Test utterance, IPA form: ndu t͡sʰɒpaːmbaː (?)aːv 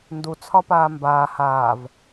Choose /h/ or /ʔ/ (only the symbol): h